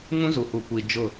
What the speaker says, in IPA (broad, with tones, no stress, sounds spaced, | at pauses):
ŋ ũ˦ z u˨ h u˨ kʷ iː˨ d͡ʒ ʊ˦˨